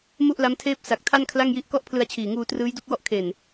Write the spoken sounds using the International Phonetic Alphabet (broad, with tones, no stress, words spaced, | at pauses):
mu˥˩ʔla˦˥mtʰeː˥˩p̚ sa˨˩k̚tʰa˥˩n kʰla˥˩ŋji˦˥ʔ kɔ˥˩ʔpʰlɯ˧a̯t͡ɕʰiː˨˩ŋuː˧ trɯː˦˥jdu˥˩k̚wɔ˥˩ʔ kʰe˨˩n